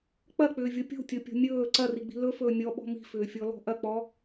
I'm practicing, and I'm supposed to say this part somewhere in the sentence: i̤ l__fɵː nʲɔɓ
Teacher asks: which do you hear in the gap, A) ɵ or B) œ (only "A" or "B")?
A